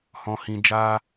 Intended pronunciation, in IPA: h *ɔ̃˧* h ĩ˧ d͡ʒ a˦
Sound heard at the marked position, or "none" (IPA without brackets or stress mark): ɔ̃˧